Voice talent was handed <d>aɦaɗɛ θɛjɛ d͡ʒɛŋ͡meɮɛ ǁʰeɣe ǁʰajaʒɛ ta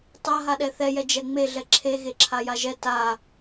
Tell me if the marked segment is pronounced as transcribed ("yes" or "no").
no